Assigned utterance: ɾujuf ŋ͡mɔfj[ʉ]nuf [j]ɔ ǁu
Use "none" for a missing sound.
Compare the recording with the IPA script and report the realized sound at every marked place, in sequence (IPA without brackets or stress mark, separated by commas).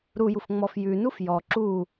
ʉ, j